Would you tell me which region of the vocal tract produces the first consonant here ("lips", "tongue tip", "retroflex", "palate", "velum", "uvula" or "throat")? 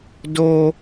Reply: tongue tip